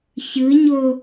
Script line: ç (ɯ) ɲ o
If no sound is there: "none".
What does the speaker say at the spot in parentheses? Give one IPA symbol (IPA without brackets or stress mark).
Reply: ɯ